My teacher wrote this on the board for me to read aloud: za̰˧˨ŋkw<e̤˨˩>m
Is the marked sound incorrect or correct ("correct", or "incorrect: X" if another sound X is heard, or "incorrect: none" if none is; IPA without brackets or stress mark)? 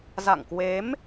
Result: incorrect: e˨˦